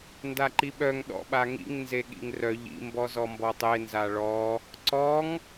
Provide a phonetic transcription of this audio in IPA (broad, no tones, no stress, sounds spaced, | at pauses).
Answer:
n d a ǃ i ɓ œ ŋ ɗ ɔ̰ ɓ a ŋ ḭ ŋ n z e ɠ ḭ ŋ r œ ʎ ḭ m b ɔ z ɔ m b ɔ tˤ e n z a ɭ ɔ | ǀ ɔ ŋ